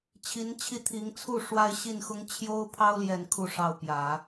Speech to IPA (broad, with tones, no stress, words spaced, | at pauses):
t͡ɕʰi˧˥nt͡ɕʰi˥˩t̪ʰi˧˥ŋ t͡sʰu˥˩ ʂwa˥ɪ̯ɕi˥˩nxʊ˥ŋ t͡ɕʰjo˥ʊ̯ pʰɑ˥ʊ̯ ljɛ˥˧nkʰu˥˧ʂɑ˥˩ʊ̯ pjä˨˩˦